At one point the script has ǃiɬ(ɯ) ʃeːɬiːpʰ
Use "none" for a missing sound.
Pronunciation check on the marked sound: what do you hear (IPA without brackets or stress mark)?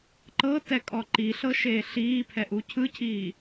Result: ɤ